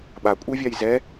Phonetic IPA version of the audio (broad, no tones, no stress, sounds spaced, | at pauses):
ɓ a kʷʼ e vʲ a j z ɛ